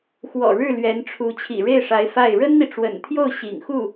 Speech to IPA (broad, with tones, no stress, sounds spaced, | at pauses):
x w ɔ̰˨˩ ɻ ɻ̩˥˩ l ɥ ɛ˧˥ n ʈ͡ʂʰ u˧˥ t͡ɕʰ ḭ˨˩ ɻ e˥˩ ɪ̯ ʂ a˧˥ ɪ̯ f a˥˩ ɪ̯ ɻ ə˥ n n̪ i˨ ʈ͡ʂ w ə̰˨˩ n t̪ʰ j o˥˩ ʊ̯ ɕ ḭ˨˩ ŋ x u˥˩